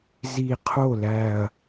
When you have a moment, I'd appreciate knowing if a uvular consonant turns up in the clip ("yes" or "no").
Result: yes